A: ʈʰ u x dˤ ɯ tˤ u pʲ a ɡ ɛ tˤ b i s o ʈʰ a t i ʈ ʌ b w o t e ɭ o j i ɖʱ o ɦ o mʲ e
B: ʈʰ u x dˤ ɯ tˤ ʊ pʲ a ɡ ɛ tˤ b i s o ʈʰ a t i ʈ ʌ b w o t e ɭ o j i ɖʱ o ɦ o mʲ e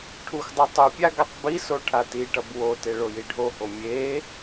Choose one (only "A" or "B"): A